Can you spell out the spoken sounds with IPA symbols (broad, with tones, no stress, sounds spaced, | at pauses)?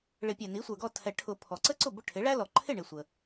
ɭ ɪ˨˩˦ pʲ ɛ˩ n i˩˥ sʷ ə˞˩ ɡ ɔ˥˩ tʰ ɛ˨˩˦ ʈʰ ʊ˨˩˦ pʰ ɔ˩ ǀ ə˥ ǀ ʊ˥˩ b ʊ˥˩ ʈʰ ɪ˩˥ ɭ æ˥ l ɔ˩ ǃʰ ɪ˥˩ ɳ ɪ˩ sʷ ə˩